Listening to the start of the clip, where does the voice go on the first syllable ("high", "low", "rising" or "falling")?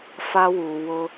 high